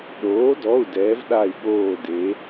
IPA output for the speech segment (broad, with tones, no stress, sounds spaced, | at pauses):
ɗ oː˩˥ d ɔ˩˧˩ u̯ d ɛː˩˧ v ɗ a˧˩ i̯ ɠ oː˧˩ d e˩˧